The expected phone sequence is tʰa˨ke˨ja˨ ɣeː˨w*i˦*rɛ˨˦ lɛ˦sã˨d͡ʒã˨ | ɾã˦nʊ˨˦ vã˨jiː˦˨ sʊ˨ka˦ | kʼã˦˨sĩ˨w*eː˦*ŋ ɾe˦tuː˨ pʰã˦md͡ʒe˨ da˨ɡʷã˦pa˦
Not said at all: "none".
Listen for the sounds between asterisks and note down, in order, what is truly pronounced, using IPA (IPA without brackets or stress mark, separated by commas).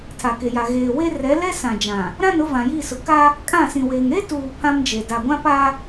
e˦, eː˨